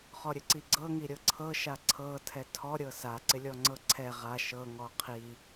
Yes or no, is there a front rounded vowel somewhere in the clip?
no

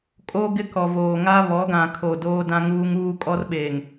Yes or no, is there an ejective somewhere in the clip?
yes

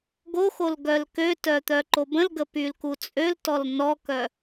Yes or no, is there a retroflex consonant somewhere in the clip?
no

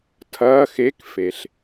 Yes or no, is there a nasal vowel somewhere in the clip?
no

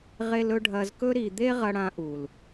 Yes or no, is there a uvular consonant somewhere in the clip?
yes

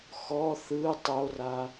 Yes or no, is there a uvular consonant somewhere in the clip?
no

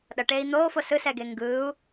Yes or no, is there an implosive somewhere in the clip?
yes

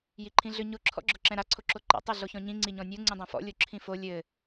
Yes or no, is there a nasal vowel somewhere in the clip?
yes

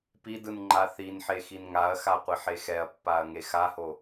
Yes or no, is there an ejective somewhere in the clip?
no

